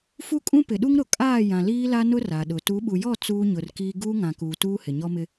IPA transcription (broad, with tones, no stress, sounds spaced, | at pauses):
f u˦ kʼ ũ˦ p ɪ˨ ɗ u˦ ŋ ɾ ʊ˨ kʼ aː˦˨ j ã˨ l iː˦ l a˦ n ʊ˦ r a˨ ɗ ʊ˨ t u˨˦ ɓ u˨ j ɔ˦˨ t͡s uː˦ ɲ ʊ˨ r k iː˦ ɡ uː˦ ŋ ã˨ k uː˨ t uː˦ h ɪ˨ ɲ ɔ˦ m ɪ˦